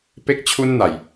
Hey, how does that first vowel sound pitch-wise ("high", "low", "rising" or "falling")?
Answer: high